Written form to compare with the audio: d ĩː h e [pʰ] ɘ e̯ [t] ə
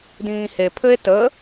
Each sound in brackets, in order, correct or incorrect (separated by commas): correct, correct